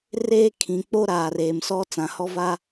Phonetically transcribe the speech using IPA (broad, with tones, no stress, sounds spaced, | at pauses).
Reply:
r eː˦ kʰ ĩ˨ k͡p o˦ ɾ aː˨ r eː˨ m s ɔ˦ t͡s ã˨ h ɔ˦ v a˦